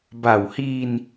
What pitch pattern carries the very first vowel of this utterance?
low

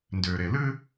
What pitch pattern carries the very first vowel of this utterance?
low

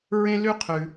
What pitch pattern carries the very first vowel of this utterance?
high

